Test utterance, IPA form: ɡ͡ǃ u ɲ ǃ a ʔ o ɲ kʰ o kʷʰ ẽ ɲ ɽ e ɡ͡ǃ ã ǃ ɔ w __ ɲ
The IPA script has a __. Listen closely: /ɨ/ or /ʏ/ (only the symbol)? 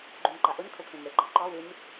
ɨ